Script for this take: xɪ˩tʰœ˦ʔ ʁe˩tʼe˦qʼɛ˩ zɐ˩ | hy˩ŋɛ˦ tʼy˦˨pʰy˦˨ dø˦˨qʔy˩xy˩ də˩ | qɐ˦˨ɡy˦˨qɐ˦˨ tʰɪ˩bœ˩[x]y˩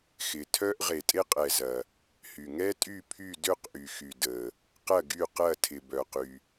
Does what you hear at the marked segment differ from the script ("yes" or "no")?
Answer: yes